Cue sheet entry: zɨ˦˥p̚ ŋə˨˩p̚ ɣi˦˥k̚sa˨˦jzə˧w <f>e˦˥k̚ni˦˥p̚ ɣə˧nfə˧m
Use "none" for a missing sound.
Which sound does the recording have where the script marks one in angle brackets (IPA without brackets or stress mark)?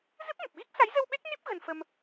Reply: ɓ